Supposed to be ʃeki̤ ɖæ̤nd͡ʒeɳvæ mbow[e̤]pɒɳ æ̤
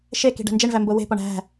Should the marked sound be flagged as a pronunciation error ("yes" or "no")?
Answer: no